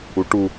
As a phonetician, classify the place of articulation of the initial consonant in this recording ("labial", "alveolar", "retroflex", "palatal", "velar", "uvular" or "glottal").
retroflex